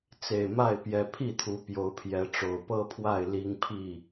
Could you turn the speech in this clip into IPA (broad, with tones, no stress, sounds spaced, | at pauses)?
t͡s e˨˩ ɪ̯ m a˥˨ ɪ̯ p j ɛ˨˩ pʰ i˥˨ t̪ʰ u˨˦ p j o˨˦ ʊ̯ pʰ j ɛ˨˦ ʈ͡ʂ o˨˩ ʊ̯ p ɤ˦ pʰ w a˥˨ ɪ̯ l i˦ ŋ pʰ i˥˨